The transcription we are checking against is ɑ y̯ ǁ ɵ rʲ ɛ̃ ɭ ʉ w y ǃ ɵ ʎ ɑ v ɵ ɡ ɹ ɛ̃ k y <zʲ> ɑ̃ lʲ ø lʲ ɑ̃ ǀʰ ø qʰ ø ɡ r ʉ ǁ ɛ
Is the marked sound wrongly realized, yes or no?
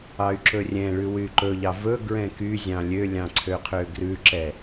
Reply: no